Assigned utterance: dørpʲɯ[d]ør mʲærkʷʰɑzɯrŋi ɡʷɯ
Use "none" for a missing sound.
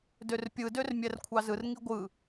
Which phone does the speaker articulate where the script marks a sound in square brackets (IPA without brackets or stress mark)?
d